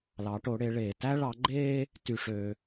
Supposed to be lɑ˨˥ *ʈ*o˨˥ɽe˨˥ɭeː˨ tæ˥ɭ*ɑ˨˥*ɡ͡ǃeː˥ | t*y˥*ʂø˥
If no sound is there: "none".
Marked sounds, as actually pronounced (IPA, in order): ʈ, ɑ˨˥, y˥

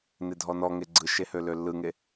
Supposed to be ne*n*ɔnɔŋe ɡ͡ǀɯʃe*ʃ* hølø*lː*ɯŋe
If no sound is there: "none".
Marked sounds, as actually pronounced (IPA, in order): dʱ, none, lː

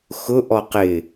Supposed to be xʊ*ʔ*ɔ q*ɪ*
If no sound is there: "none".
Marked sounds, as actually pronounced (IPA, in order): ʔ, ɪ

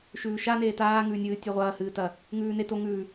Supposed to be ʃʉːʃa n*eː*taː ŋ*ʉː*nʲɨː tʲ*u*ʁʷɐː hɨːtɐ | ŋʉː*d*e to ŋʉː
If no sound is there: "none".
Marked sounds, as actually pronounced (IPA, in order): eː, ʉː, ʉ, n

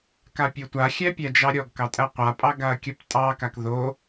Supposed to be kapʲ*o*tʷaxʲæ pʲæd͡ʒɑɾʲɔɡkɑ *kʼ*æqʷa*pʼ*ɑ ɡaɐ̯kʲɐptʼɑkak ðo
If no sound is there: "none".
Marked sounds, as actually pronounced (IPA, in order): o, tʼ, pʼ

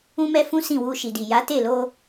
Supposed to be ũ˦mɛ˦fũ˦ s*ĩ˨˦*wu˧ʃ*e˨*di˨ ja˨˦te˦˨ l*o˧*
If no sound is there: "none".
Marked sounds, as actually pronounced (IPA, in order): ĩ˦˨, i˨, o˧

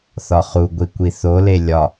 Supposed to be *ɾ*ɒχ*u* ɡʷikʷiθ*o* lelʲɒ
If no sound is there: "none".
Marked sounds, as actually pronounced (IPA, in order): θ, u, o

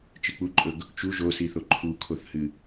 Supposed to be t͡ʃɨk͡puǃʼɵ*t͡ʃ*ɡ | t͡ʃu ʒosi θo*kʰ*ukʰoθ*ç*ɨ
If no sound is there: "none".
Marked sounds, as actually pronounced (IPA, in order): none, ǃʰ, h

